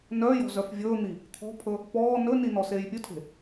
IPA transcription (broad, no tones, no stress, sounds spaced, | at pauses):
n œː j ɔ̤ z œ f vʲ ɵː n̪ i | t̪ʰ ɔ̤ pʰ ɵ | p ɔː n ɵ n i n ɔ s eː j pʲ ɵ tʰ e̤